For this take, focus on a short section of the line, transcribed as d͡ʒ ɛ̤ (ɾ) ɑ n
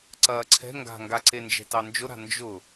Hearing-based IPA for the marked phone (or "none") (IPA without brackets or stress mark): t